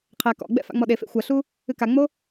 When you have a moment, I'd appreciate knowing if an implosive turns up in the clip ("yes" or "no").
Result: yes